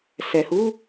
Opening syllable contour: low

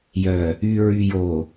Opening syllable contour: low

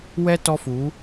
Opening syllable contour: high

